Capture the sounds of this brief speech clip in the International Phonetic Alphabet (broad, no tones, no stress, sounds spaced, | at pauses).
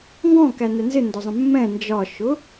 ŋ ɡ ɔ̃ k æ n ɛ n z ɪ n d ɒ zˤ ə̃ mː ɛ̃ n d͡ʒ ɒ ʃ ʊ